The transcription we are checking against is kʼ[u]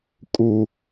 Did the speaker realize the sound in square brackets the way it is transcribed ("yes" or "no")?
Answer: yes